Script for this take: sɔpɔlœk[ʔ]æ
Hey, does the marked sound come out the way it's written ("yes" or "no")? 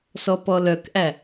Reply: yes